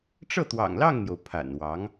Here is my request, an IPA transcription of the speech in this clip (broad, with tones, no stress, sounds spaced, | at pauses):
ʈ͡ʂ ɤ˥˩ t̪ w ɑ̰˨˩ ŋ l ɑ˥˩ ŋ n̪ j o˩ ʊ̯ pʰ a̰˨˩ n w ɑ˧˥ ŋ